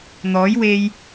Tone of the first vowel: rising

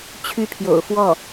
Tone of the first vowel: falling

